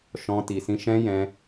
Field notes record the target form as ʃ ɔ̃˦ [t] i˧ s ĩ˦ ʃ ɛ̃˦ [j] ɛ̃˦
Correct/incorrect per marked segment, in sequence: correct, correct

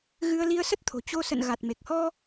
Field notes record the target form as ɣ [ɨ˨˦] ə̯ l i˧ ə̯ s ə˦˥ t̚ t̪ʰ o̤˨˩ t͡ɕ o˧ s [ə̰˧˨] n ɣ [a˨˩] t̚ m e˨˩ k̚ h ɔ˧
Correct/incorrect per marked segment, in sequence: incorrect: ɨ˧, correct, correct

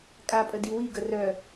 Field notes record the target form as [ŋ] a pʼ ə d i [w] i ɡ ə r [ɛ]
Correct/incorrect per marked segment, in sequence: incorrect: kʼ, correct, incorrect: œ

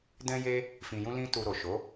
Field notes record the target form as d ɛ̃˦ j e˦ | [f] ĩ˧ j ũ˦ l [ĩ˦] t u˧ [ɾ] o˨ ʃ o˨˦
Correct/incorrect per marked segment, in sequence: correct, correct, correct

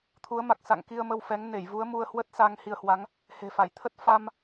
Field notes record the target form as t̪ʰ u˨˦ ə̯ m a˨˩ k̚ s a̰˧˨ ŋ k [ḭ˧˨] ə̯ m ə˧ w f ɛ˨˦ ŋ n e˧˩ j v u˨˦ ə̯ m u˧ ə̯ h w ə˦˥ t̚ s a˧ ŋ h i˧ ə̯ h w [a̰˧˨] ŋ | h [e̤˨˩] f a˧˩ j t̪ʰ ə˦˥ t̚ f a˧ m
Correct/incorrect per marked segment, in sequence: incorrect: i˧, incorrect: a˨˦, correct

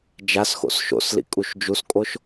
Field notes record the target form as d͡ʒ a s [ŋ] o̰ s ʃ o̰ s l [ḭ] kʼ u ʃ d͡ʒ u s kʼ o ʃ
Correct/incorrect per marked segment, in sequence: incorrect: x, correct

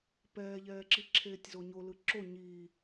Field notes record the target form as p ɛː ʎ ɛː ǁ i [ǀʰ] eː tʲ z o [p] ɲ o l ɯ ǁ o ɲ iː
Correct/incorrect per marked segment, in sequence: incorrect: ǁʰ, incorrect: none

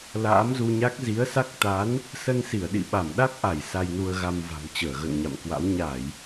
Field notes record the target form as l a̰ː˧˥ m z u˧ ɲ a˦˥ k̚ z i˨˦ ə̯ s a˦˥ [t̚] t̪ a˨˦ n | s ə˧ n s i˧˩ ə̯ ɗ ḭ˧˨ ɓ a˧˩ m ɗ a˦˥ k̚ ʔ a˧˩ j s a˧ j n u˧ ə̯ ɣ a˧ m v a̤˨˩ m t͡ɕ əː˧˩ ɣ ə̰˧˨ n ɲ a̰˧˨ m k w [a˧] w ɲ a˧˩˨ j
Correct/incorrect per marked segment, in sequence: incorrect: k̚, incorrect: a̰˧˥

